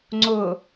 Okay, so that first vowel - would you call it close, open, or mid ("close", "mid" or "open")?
close